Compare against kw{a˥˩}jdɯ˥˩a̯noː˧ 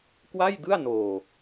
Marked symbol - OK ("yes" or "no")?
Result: yes